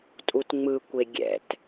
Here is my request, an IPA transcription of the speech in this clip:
tʼ u t ŋ͡m ɯ kʷ e ɡʲ ɛ̰ t

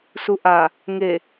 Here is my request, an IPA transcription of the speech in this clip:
s u ʔ a | ŋ e

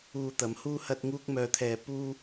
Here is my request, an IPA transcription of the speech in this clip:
uː˧ t̪ ɐ˨˧ m h uː˥ h ɐ˥ t̚ ŋ uː˥ k̚ m œː˧ t̪ʰ ɛː˧ p uː˥

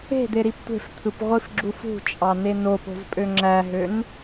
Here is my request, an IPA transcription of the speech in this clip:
e̤ d̪ e ɾ i p tʷ e̤ f t̪ʰ ɯ p ʁʷ i f ɡ͡ǁ u f ṳ t͡ʃʼ ɑ n e n o p o̤ z pʼ ø ŋ͡ǁ æ ɦ ø n

